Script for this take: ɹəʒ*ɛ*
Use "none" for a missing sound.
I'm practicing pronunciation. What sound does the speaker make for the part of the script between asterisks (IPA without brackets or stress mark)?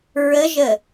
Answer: ə